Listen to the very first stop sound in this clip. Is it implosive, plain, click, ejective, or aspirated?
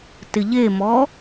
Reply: plain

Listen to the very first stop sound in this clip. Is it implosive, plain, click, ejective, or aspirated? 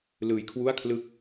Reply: aspirated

